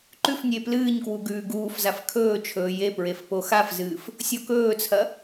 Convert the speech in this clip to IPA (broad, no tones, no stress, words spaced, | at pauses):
ǃʉfnʲe plɨːɲkwu ɡʉːɡuːfzaf kʰɵːt͡ʃʰɵː jepɹef poxafzɨːf | sʲokɵːt͡sʰɐ